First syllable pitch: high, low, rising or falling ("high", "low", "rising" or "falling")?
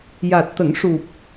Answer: low